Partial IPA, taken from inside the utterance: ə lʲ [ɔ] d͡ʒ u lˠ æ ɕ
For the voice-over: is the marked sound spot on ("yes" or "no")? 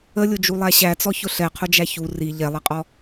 no